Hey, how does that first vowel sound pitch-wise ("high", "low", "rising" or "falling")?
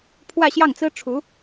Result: falling